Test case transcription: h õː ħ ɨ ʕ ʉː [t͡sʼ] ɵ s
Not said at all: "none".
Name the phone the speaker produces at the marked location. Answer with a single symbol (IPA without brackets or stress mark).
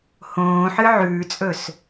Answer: t͡sʼ